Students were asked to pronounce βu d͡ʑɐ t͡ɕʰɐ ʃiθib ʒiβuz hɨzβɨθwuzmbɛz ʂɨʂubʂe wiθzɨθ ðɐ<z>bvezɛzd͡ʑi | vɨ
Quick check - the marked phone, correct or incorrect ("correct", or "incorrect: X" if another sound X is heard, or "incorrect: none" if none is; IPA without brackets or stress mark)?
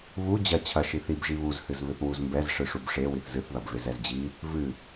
incorrect: none